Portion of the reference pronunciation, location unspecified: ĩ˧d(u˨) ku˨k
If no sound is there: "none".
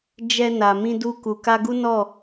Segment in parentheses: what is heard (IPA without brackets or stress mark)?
u˧